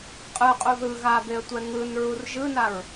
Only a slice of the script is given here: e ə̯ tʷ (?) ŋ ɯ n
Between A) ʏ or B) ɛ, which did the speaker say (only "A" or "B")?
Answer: B